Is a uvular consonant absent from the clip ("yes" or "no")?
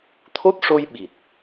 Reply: yes